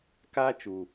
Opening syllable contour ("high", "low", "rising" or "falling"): high